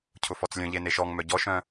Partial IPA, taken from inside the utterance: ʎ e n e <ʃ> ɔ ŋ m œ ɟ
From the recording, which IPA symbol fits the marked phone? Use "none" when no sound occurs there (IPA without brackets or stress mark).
ʃ